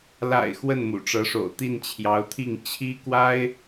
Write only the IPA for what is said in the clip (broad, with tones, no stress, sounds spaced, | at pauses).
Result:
l a̰˨˩ ɪ̯ x w ə˥˩ n m ṵ˨˩ ʈ͡ʂ ɤ˧˥ ʂ o̰˨˩ ʊ̯ t̪ i˥˩ n t͡ɕʰ j ɑ˧˥ ʊ̯ t̪ʰ i˥˩ ŋ t͡ɕʰ i˥ k w a˥ ɪ̯